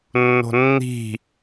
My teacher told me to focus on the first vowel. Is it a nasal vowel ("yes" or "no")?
no